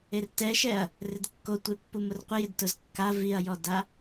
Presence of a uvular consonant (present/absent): present